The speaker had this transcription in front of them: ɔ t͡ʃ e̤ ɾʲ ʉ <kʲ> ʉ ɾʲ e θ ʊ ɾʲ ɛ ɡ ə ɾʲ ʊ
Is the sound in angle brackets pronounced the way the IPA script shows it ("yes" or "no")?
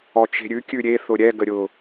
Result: yes